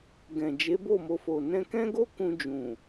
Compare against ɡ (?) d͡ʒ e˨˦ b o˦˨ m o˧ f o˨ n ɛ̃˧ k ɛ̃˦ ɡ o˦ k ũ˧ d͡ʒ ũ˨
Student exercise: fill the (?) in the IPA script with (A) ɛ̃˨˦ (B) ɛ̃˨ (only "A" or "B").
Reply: B